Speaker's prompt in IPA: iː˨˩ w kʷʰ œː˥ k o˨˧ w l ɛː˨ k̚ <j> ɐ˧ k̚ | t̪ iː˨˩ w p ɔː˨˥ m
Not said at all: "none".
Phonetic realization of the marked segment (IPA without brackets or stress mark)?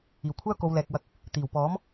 w